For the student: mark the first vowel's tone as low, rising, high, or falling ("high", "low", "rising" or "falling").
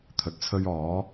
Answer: low